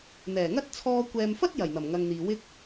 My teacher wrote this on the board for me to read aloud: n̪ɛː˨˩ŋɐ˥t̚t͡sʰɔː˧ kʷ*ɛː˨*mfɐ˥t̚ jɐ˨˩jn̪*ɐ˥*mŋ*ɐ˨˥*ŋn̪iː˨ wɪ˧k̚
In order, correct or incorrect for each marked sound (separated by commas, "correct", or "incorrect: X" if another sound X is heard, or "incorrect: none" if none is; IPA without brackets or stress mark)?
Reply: correct, incorrect: ɐ˨˩, incorrect: ɐ˨